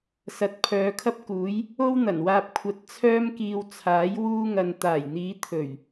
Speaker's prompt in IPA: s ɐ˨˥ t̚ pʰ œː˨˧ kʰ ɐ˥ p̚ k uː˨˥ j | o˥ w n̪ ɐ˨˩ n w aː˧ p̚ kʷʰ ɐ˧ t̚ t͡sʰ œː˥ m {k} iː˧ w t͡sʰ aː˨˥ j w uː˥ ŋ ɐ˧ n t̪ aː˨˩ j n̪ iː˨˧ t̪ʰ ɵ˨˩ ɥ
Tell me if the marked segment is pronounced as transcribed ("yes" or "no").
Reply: yes